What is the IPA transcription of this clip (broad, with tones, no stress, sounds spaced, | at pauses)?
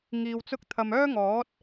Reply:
ŋ iː˧ w t͡s ʊ˥ k̚ t̪ʰ ɐ˧ m œː˥ ŋ ɔː˨˥ t̚